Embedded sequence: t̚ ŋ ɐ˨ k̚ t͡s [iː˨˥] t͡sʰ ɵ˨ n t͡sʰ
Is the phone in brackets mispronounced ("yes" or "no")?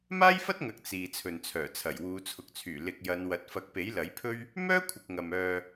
yes